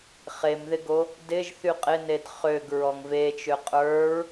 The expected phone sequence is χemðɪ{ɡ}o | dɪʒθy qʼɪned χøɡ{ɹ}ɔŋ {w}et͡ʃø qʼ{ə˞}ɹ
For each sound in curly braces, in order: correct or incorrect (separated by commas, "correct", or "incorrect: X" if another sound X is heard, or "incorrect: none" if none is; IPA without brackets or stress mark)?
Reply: correct, correct, incorrect: v, correct